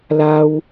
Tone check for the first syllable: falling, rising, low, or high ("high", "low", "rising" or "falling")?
high